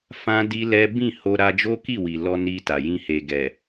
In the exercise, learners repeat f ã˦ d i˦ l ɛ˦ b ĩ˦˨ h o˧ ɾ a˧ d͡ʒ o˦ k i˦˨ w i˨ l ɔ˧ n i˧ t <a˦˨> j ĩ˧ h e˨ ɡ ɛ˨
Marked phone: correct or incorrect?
incorrect